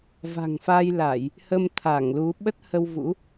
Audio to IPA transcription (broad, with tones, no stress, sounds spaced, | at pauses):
v a̤˨˩ ŋ f a˧ j l a˧˩˨ j | h ə˧ m t̪ʰ a˧˩ ŋ l u˨˦ ɓ ə˦˥ t̚ h ə˧ w v ṵ˧˥